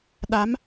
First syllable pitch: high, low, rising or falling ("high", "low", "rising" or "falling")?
rising